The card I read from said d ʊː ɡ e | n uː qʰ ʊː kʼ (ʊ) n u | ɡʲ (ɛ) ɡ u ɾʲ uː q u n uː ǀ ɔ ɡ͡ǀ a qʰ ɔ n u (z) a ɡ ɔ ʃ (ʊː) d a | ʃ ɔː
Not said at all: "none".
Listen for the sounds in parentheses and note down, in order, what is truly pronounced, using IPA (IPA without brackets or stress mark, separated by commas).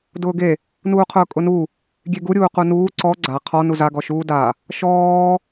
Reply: ʊ, e, z, uː